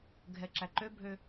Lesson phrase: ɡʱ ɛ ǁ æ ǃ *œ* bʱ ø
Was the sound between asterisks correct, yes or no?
no